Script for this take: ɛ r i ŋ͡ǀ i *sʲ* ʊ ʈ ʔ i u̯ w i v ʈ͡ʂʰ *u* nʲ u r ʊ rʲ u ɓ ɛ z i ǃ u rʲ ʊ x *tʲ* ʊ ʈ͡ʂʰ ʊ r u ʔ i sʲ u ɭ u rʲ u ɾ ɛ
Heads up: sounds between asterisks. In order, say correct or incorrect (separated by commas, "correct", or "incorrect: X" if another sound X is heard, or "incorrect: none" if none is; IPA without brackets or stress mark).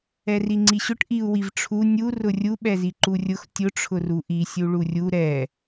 incorrect: ɕ, correct, correct